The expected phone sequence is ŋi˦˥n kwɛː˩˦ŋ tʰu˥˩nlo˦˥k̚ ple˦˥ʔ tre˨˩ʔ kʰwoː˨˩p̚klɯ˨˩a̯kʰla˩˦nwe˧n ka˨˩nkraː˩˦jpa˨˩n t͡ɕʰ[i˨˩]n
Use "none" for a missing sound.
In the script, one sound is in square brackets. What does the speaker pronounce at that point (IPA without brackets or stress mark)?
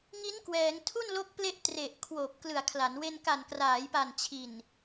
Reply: i˨˩